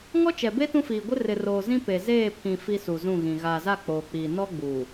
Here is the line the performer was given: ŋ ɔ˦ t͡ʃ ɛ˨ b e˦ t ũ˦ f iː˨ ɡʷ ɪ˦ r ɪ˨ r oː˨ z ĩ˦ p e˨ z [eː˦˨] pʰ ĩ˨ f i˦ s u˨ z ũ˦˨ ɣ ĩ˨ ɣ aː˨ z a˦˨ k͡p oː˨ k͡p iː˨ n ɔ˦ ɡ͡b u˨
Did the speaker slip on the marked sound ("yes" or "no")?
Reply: no